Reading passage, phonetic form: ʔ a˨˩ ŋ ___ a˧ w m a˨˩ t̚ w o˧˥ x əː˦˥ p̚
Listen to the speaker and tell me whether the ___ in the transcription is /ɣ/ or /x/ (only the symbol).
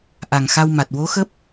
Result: x